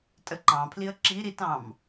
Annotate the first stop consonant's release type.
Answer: ejective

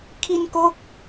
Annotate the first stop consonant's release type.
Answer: aspirated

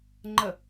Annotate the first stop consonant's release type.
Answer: click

